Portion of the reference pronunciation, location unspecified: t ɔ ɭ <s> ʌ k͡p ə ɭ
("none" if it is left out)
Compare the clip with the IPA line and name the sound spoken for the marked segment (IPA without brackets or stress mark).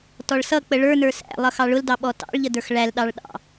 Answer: s